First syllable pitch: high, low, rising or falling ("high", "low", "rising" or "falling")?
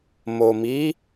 low